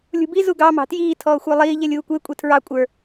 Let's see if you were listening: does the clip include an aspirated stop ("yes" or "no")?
yes